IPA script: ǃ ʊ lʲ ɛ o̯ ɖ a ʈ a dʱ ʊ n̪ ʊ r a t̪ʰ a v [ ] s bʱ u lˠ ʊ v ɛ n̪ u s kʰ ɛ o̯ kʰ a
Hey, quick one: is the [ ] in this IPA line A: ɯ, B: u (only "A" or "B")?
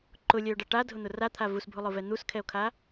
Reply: B